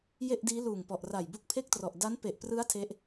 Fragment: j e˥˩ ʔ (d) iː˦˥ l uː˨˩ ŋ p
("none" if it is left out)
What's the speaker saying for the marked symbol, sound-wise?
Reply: d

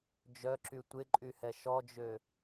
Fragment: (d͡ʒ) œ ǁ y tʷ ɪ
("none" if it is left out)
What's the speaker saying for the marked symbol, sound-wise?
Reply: d͡ʒ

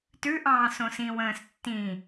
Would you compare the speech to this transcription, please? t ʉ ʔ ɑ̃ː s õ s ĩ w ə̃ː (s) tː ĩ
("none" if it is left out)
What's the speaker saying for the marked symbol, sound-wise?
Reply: s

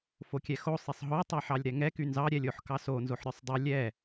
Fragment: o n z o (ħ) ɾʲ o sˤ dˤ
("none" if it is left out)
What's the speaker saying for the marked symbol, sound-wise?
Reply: ħ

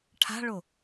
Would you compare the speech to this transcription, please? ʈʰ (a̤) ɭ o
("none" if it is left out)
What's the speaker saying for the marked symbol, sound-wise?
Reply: a̤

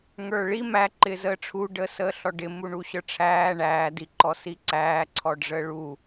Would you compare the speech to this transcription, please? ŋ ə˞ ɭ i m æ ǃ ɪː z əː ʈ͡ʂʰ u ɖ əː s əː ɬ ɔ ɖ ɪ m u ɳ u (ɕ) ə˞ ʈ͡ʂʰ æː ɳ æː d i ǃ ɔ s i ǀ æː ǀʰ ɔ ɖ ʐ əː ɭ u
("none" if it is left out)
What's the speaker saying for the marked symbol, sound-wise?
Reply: ɕ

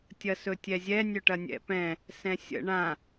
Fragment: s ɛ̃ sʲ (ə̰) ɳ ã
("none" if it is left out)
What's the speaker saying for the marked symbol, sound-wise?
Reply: ə̰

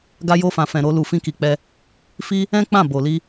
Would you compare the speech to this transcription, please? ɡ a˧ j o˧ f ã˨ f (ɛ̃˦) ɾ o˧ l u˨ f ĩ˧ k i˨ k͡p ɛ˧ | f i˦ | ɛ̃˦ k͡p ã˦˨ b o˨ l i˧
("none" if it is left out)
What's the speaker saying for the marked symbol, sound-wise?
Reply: ɛ̃˨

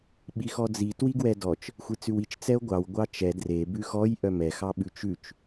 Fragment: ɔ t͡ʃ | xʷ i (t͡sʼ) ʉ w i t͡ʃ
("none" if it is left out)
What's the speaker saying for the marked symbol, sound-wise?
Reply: t͡s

